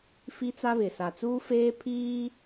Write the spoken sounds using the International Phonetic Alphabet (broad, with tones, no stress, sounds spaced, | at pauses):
f i˦ t͡s a˦ β ɪ˨ s a˨ t͡s uː˦ f eː˦ pʰ iː˦